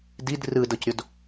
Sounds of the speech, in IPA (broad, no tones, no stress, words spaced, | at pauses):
did rɯdɤcɾʲod